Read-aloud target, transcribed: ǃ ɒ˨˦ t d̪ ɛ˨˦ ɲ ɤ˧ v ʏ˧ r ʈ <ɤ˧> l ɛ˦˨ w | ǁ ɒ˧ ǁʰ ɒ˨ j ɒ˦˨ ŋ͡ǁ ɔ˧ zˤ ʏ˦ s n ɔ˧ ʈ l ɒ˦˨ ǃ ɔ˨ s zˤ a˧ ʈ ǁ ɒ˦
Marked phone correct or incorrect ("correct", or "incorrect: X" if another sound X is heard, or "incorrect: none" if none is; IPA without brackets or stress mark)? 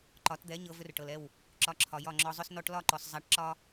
incorrect: ɤ˨